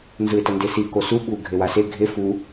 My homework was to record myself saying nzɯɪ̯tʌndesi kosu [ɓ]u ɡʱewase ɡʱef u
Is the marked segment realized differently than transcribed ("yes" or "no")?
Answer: no